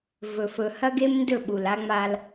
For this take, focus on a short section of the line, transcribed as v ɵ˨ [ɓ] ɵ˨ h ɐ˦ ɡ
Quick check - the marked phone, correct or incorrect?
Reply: incorrect